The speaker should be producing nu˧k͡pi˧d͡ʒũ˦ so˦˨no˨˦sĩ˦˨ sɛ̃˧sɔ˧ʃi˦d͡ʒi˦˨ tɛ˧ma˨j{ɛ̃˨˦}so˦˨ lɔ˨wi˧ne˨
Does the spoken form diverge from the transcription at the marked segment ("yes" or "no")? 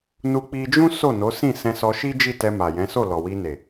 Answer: no